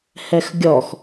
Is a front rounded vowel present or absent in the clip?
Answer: absent